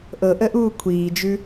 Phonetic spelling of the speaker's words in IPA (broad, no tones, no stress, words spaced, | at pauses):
ʔɤʔəʔuː kʷʰiːd͡ʒʉ